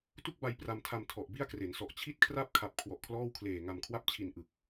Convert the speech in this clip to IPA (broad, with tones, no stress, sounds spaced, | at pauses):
t u˥˩ k̚ b a˧ j p r a˧ m tʰ a˧ m tʰ ɔ˨˩ ʔ b i˥˩ a̯ k r e˩˦ n s ɔ˨˩ ʔ t͡ɕʰ i˥˩ t̚ kʰ r a˥˩ p̚ kʰ a˨˩ p̚ kʰ w ɔ˨˩ ʔ kʰ l ɔː˥˩ w kʰ l eː˨˩ ŋ a˨˩ m kʰ w a˥˩ p̚ t͡ɕʰ i˨˩ n ʔ ɯ˨˩ k̚